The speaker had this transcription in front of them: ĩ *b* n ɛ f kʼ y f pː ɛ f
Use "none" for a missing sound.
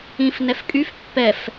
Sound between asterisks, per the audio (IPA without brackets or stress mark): f